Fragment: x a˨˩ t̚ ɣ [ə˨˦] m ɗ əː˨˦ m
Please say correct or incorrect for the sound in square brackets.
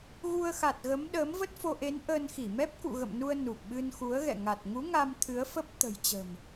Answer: correct